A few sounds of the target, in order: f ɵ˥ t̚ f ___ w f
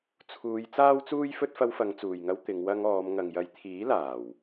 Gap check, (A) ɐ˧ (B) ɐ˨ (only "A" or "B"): A